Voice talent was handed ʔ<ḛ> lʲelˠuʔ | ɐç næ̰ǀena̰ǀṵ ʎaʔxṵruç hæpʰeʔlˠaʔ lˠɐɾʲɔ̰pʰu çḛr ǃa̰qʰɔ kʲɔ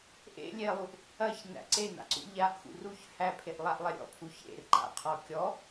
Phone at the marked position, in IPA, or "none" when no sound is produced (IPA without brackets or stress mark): ḛ